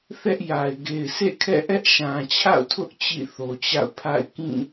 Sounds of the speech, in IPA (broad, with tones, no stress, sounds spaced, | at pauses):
θ ɛ˦ ʔ j a˨ ɪ̯ ɡ e˨ ɪ̯ sʰ ḛ˦˨ kʰ ɛ̰˦˨ ʔ ɛ˦ ʔ ʃ ã˨ t͡ɕʰ a̰˦˨ ʊ̯ tʰ ʊ˦ ʔ t͡ɕ ḭ˦˨ θ o˨ t͡ɕ a̰˦˨ ʊ̯ pʰ a̰˦˨ ɪ̯ k ĩ˦˨